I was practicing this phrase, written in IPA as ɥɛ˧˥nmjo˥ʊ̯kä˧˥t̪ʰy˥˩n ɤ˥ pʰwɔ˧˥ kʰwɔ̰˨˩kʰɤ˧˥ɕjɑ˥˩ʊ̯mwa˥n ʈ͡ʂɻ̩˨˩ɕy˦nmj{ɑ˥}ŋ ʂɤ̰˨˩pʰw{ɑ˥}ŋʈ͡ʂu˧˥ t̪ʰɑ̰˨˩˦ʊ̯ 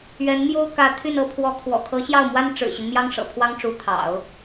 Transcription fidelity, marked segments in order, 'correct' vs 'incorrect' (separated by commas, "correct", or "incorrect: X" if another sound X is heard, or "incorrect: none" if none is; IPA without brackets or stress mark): correct, correct